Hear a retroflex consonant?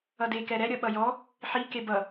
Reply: no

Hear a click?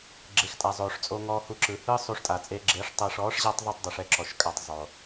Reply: yes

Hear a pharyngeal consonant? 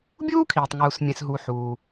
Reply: yes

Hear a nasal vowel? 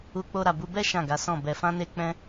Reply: yes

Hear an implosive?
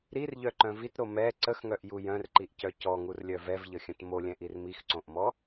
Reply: no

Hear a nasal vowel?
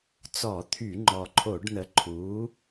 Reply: no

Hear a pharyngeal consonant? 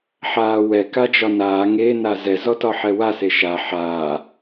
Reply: yes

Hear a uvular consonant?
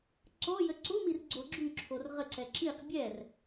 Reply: yes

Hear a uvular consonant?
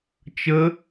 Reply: no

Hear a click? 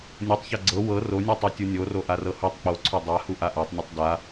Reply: yes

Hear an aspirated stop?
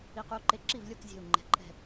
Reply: no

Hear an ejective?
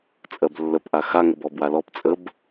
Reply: yes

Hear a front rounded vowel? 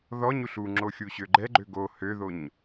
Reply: yes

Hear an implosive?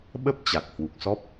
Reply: yes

